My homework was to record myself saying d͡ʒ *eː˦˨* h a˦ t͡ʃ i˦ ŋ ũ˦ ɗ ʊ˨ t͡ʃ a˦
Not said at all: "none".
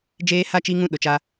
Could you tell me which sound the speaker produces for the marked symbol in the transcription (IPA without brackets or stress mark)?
eː˦